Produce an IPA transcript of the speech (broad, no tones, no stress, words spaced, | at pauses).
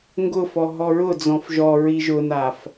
ŋɡʊfɔ ɦɔɹʊ d͡zɔ̃fʒɔɹi ʒʊnaf